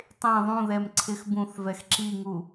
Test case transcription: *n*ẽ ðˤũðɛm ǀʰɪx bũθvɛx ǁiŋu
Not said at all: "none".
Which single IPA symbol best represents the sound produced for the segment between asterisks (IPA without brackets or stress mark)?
tˤ